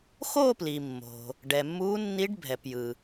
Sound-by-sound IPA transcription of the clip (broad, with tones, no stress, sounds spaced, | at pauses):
x o˥˧ p l i˩ mː o̤˩ | ɖ ɛ˩ mː uː˧˥ nː i˧˥ ɖ bʱ ɛ˩ p j ɯ˩